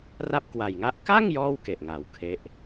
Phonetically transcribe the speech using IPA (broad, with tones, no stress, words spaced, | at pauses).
ra˥˩p̚kwa˨˩jŋa˥˩ʔ ka˥˩ŋ jɔː˥˩wke˨˩ʔŋa˩˦w kʰe˦˥ʔ